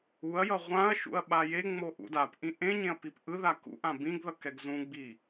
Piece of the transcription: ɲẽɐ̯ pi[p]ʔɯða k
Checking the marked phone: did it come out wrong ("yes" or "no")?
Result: no